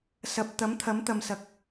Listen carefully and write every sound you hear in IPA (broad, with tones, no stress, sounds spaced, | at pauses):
s ɐ˨ p̚ t̪ ɐ˨˥ m t̪ʰ ɐ˨˥ m t̪ ɐ˨ m s ɐ˨˥ k̚